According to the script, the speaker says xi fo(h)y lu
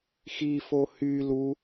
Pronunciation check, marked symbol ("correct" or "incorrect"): correct